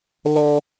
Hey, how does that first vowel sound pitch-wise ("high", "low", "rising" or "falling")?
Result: high